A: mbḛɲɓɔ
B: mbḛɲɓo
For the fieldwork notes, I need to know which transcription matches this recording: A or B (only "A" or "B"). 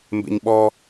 A